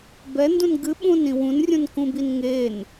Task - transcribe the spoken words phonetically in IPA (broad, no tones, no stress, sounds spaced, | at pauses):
b ɛ n d ũ n ɡ ɨ ɓ ũ n ĩ w ũ n rʲ ũ n k ũ b i n ŋ e n